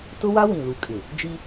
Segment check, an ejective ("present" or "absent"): present